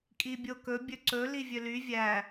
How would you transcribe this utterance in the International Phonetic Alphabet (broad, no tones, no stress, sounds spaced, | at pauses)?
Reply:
kʼ i bʲ o k ɵ bʲ ɵ ǀ ɵ l i vʲ ø l y vʲ æ